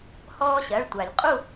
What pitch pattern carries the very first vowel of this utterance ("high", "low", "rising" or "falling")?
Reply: high